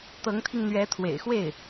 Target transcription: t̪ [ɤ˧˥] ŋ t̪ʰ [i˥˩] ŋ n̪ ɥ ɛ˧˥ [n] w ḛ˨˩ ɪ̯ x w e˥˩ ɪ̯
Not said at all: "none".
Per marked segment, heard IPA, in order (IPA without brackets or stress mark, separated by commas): ɤ˧˥, i˧, t̪ʰ